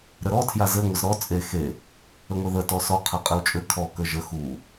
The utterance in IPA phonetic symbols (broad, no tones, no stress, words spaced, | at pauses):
ɾəɾɔ tʰjazɘ ŋʷəzɾɔ t͡sʼe xe | əŋʷeðə tɔsɔ qʰaqʼɘwt͡ʃʼɘ kʰɔ kəʒə xu